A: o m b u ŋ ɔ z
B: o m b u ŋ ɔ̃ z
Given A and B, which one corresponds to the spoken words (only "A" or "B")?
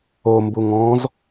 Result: B